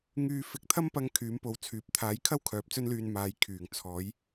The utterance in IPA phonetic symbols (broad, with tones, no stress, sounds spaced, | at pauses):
ŋ yː˧ f ɪ˧ k̚ t̪ʰ ɐ˥ m p ɐ˥ ŋ kʰ yː˨˥ m p o˨˧ w t͡sʰ yː˨ p̚ t̪ʰ aː˨˥ j kʰ ɐ˥ w kʰ œː˨˥ p̚ t͡s ɵ˥ n l yː˧ n m aː˨ j kʰ yː˨˩ ŋ t͡sʰ ɔː˨˥ j